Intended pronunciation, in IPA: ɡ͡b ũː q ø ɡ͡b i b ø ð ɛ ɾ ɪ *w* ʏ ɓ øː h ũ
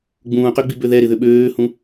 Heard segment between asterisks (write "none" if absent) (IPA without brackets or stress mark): ð